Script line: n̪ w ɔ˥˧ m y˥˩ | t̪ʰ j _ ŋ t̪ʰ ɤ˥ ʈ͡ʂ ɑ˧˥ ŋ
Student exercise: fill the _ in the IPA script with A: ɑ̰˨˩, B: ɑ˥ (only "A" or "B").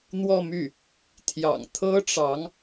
A